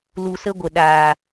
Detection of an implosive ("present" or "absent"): present